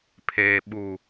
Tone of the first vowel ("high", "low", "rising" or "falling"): low